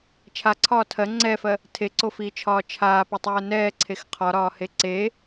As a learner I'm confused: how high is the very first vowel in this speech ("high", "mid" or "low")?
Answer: low